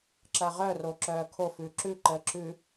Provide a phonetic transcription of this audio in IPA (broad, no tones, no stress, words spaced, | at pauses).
ǁɐʁœ roǁœːkʰo fʉǁʉ ǃəːǁʉ